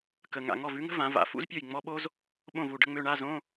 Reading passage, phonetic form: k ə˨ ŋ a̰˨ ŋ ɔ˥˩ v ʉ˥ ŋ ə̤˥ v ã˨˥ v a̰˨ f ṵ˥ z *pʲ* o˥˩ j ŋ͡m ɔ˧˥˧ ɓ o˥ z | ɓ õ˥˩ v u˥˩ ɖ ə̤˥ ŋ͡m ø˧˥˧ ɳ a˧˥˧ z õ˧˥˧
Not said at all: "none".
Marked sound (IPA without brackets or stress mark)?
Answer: pʲ